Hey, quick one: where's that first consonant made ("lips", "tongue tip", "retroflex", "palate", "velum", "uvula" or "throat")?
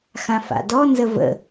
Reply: velum